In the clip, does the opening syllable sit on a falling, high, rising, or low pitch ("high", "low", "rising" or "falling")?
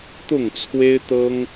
falling